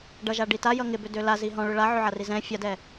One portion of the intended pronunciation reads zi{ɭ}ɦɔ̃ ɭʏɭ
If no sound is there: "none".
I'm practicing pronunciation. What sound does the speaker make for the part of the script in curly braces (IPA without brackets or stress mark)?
none